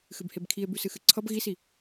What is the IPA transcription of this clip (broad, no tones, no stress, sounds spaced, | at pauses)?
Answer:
x ɨ b h e b kʰ i e̯ b ʉ s ɨ x ɨ ǀʰ ʌ b ɣ i s i